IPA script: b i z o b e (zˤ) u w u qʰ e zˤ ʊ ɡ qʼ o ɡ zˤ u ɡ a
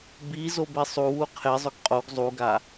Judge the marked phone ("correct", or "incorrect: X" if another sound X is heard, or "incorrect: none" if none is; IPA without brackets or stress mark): incorrect: sˤ